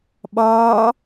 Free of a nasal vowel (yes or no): yes